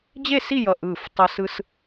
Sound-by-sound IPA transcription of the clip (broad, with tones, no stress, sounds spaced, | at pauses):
d͡ʑ e˥˧ s i˥˧ j ʌ˧˩ ʔ ɯː˧˩ f tˤ ʌ˧ s ɯ˧ s